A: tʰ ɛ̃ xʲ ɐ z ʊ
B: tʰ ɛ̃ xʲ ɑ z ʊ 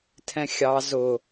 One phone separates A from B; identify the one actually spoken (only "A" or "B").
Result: B